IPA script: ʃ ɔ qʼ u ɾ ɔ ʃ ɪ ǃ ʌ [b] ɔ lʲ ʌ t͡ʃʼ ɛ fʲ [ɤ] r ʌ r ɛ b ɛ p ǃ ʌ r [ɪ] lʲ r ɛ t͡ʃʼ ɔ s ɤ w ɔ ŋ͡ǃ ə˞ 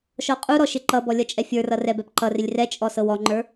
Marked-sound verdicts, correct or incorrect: correct, incorrect, correct

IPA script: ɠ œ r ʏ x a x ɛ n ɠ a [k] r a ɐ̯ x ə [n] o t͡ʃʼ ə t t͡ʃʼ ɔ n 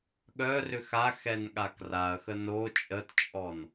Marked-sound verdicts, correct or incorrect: correct, correct

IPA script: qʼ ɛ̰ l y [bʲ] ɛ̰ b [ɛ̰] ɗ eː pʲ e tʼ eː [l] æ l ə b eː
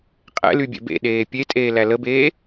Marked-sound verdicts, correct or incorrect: correct, incorrect, correct

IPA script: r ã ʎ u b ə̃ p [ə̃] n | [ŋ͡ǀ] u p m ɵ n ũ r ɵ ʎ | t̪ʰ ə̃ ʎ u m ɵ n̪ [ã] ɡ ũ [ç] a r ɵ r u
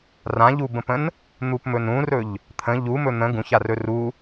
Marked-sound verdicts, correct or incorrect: correct, incorrect, incorrect, correct

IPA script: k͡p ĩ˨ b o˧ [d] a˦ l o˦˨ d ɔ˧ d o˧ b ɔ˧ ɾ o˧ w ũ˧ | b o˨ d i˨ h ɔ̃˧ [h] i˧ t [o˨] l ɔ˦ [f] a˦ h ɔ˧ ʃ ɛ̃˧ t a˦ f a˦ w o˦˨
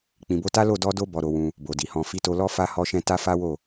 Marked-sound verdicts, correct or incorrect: incorrect, incorrect, incorrect, correct

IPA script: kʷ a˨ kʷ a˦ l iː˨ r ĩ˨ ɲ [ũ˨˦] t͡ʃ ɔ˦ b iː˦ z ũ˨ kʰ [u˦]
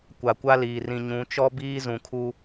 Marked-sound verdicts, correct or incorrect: correct, correct

